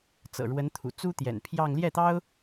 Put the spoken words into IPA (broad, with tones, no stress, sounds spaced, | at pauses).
t͡s ɤ̰˨˩ ɻ w ə˧˥ n t̪ʰ ṵ˨˩ t͡s u˥ t̪ j ɛ̰˨˩ n pʰ j ɑ˥˧ ŋ l j ɛ˥˩ t̪ ɑ˥ ʊ̯